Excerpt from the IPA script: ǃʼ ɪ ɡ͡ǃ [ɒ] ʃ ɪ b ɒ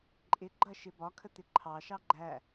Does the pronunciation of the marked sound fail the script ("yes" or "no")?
yes